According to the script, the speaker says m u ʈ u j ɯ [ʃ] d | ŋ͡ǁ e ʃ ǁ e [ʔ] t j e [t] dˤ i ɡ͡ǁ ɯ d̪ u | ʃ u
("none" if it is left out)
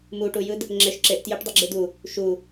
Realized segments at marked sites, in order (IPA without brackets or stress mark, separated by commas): none, ʔ, ʈ